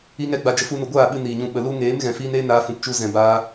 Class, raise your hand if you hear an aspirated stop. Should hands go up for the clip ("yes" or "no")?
no